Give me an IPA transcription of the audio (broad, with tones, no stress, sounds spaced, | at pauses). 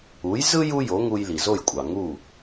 u˩˥ j z ɯ˥ j u˥ j o˩˥ ŋ u˧ j l i˩ z o˥˩ j kʷʼ ɑ˩ ŋ u˥˩